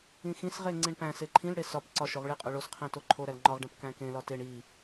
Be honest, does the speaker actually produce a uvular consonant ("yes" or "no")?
yes